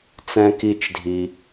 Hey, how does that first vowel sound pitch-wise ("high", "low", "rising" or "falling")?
high